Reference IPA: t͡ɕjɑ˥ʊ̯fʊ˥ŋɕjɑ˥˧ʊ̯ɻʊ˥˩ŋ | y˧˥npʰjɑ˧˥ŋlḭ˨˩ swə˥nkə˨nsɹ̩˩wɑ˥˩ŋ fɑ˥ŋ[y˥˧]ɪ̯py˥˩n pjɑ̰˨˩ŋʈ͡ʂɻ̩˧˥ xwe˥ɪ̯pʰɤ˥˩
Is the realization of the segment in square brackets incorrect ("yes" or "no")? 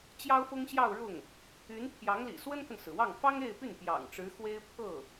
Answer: yes